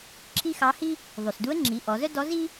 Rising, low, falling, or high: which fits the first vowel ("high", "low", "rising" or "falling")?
high